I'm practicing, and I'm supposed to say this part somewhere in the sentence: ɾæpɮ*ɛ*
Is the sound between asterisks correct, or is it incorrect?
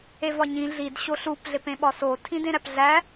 incorrect